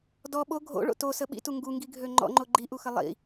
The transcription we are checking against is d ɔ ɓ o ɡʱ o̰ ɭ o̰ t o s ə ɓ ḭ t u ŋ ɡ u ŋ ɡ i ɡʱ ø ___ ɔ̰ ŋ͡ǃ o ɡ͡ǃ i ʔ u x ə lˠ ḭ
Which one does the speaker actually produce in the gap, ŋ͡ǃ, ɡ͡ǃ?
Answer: ŋ͡ǃ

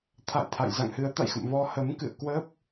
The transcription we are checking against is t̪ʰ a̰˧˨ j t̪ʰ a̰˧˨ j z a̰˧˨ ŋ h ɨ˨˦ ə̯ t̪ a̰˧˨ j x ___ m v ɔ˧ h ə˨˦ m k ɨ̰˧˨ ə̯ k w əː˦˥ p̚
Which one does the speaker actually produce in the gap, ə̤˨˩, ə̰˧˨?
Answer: ə̰˧˨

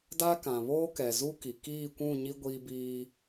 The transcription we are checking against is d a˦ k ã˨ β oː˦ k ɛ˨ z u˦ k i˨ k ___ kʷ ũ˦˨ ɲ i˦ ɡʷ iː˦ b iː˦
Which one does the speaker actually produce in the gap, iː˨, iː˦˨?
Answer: iː˦˨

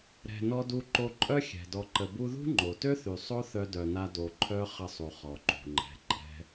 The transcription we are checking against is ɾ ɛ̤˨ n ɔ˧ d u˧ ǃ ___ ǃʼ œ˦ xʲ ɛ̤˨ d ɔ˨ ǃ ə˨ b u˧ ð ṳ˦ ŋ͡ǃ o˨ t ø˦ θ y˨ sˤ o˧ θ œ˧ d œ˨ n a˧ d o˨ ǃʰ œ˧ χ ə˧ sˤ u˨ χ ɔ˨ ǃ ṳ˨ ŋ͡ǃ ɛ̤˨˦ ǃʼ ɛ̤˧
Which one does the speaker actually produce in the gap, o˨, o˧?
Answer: o˧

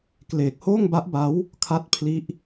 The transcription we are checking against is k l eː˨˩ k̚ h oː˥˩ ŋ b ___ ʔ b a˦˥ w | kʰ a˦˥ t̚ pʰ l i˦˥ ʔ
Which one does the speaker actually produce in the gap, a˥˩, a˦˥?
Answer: a˦˥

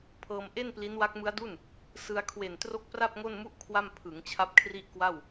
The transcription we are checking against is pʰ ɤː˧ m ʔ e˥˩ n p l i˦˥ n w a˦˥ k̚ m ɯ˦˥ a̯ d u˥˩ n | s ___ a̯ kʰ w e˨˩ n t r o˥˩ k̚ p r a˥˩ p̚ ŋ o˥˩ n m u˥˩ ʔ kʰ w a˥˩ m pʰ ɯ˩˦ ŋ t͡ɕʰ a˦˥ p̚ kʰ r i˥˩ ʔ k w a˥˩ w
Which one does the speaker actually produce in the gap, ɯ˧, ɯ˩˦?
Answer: ɯ˧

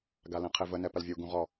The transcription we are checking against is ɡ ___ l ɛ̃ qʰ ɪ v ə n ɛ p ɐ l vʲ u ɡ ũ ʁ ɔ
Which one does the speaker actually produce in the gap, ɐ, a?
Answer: a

